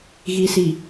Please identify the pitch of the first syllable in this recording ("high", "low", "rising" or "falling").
low